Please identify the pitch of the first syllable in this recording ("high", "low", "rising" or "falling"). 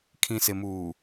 low